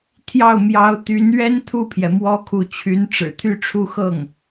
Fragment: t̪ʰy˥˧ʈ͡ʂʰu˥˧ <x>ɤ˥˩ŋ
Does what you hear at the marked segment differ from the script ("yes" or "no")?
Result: no